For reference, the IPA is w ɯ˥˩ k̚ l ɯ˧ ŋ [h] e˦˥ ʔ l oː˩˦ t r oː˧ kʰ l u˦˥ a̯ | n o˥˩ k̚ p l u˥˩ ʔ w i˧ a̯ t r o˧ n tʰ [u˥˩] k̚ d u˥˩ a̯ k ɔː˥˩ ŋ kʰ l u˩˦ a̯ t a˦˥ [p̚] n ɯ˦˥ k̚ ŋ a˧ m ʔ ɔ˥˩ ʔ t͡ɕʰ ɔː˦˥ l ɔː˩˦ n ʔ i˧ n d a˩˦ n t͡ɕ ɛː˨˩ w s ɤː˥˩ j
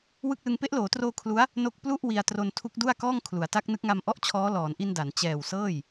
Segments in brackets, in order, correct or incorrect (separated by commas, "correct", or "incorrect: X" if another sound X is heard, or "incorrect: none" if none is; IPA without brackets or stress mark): incorrect: p, incorrect: u˦˥, incorrect: k̚